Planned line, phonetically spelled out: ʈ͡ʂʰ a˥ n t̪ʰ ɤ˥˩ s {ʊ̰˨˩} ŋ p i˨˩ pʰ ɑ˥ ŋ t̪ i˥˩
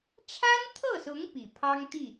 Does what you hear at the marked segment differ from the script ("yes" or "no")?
yes